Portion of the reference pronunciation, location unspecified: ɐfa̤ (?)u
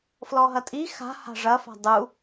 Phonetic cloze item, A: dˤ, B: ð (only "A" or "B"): A